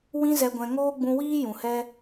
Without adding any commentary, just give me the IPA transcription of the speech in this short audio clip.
wĩ˧zɛ˨ɡʷɛ̃˨ ŋoː˦ɡ͡bũ˧wiː˦ jũ˨hɛ˦

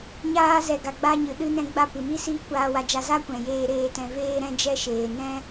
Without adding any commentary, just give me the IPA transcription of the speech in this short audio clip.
ɲaː˧zɛ˨ ɡa˨ɡ͡ba˧ɲɨ˨ ɗɨ˧nɛ̃˧ɡ͡ba˧ pɨ˨mi˦siː˦ kʷaː˧wa˧d͡ʒa˧ za˦kʷɛ̃˨ jeː˧ɾeː˧tɛ̃˧ veː˧ɾɛ̃˧d͡ʒɛ˧ʃeː˨ nɛ̃˦

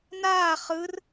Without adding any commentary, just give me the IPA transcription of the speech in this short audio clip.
naː χɯr

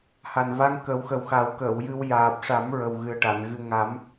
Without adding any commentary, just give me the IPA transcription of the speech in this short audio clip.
ha˨˩nva˧ŋ kə˨˩˦wxə˨˩wxa˨˩˦w kəː˨˩˨wjɨ˧w jaː˨˩p̚ʂa˨˩˦m ɹə˨˩wɣɨ˨˩ə̯ʈa˨˩˨n ɣɨ˨˩ ŋa˨˩˦m

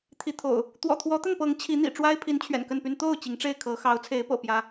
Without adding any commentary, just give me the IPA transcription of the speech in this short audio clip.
t̪ʰi˨˦t̪ʰo̰˨˩ʊ̯ | t̪wɔ̰˨˩t̪ʰwɔ˨˦t̪ə˥˨npɤ˨˦ŋ t͡ɕʰi˨˦n̪ḭ˨˩ ʈ͡ʂwa˦ɪ̯pʰi˨˦n t͡ɕʰɥɛ̰˨˩nkə˥˨npy˦n t̪o˥˨ʊ̯ t͡ɕi˨˦ŋʈ͡ʂe˥˨ɪ̯ kʰɤ˨˦ xɑ˨˦ʊ̯ t͡sʰe˨˦ɪ̯pɤ̰˨˩ pjä˦

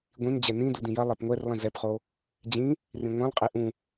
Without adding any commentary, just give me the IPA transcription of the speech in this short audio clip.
ɡʷĩnd͡ʑɛ nĩ dudĩjɐ lˠɛpŋʷɛrlˠĩ zɛpχo | d͡ʑĩ | rĩŋʷɛ̃lˠqʼi ʔũ

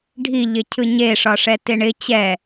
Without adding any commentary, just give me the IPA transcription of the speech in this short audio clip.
ɖʱi ʎɪcʰɯɲe ʂɒʂɛtɪɳɪ t͡ɕɛ

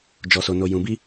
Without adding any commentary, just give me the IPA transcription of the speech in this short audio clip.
d͡ʒɔ˨so˨no˨ jũ˨bi˧

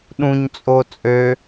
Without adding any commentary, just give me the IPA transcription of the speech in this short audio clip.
ɗũɲt͡sʼo t͡sʼø

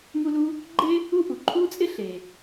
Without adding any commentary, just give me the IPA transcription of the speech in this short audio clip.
mu˥lu˥ | ɡ͡ǃe˥ | u˥ ʔu˩ǃʰu˥t͡sʼɪ˥ ɬe˩

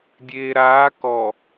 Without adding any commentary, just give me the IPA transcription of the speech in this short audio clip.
dʲeːɾaː kɔ

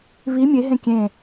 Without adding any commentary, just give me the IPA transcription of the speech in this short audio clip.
βi mʲeɦẽ kʲẽ

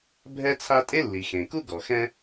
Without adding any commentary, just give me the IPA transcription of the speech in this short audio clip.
bʱɛ˥t͡sʰa˥ tʼe˥lːi˩xẽ˩ku˥ ɡɔ˩xɛ̃˥

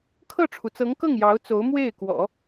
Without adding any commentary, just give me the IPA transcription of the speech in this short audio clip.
kʰɤ˥˩ʈ͡ʂʰu˩t͡sɤ˧˥ŋkɤ˥˩ŋ jɑ˧˥ʊ̯ t͡so˧˥ʊ̯mwe˥˩ɪ̯ kwɔ̰˨˩˦

